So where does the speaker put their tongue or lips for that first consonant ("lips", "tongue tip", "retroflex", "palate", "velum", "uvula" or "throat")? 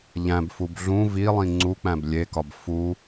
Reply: palate